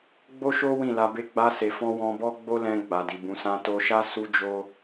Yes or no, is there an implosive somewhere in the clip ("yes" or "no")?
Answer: no